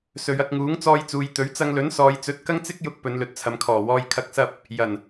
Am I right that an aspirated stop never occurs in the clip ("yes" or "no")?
no